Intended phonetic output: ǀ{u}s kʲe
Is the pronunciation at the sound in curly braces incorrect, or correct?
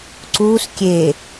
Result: correct